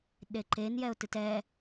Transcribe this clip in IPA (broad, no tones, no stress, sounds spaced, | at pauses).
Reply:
ɗ e ǃ e n j ɛ ʊ̯ t ɨ t ɛ